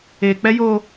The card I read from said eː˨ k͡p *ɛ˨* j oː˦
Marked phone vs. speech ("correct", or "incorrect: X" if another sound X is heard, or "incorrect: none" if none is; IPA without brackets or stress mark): incorrect: ɛ˦